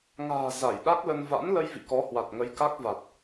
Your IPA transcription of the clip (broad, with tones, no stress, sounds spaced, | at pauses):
ŋ a̤ː˨˩ z a˧˩ j ɗ a˦˥ k̚ l ə˧ n v a̰˧˥ n l ə˧ j v ḭ˧˨ k ɔ˨˦ h w a˨˩ t̚ ŋ ə˨˦ j k a˦˥ k̚ v a˨˩ t̚